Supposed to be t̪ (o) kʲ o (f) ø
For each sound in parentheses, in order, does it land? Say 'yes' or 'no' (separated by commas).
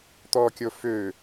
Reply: no, yes